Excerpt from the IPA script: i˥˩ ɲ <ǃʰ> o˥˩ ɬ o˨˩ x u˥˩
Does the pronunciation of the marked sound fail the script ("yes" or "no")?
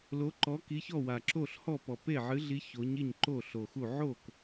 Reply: yes